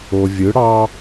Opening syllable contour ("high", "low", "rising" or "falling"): low